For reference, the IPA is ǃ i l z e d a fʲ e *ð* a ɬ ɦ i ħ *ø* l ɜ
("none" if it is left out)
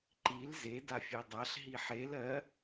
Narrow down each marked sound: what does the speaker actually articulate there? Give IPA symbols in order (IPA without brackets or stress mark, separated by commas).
dˤ, e